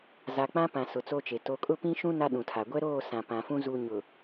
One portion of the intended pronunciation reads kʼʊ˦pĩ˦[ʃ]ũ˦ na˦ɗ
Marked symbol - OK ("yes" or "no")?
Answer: yes